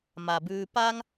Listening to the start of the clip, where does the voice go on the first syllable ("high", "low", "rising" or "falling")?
low